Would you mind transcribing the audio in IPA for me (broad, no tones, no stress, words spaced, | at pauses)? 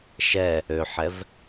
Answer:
ʃɛ | øħɛv